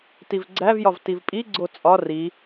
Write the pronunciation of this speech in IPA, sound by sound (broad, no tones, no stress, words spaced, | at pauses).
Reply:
tivɡ͡ǀævjɒv tivpʼiɡ͡ǀo t͡sʼɒ ri